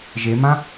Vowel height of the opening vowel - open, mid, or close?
mid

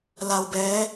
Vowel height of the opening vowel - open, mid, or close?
open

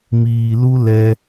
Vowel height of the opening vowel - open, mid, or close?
close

